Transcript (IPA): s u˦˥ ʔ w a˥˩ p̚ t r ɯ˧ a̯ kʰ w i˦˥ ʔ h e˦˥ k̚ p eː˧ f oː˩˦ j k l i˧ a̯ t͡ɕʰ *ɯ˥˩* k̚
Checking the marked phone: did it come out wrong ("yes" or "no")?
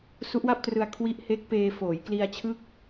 no